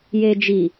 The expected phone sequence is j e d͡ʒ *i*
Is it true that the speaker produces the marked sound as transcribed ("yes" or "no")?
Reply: yes